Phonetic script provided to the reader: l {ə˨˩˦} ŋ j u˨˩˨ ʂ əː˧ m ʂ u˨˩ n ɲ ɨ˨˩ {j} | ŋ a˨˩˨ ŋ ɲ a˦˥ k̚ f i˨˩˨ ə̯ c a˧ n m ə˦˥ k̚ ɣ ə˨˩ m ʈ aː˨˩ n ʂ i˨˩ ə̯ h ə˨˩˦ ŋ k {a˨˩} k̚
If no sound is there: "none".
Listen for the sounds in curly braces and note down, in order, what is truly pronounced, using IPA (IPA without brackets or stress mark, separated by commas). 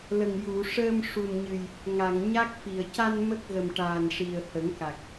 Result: ə˨˩, j, a˨˩